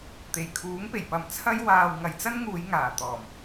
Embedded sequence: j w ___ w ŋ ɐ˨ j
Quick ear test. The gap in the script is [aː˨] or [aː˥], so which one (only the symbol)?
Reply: aː˨